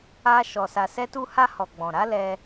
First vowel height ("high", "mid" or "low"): low